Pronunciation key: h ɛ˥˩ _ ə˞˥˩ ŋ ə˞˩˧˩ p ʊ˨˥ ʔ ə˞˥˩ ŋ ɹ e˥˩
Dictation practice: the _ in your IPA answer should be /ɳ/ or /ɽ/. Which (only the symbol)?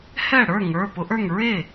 ɽ